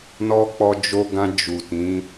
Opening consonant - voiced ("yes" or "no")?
yes